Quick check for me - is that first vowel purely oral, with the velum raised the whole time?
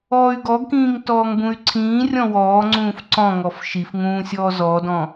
yes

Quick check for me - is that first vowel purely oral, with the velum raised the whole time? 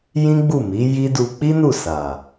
no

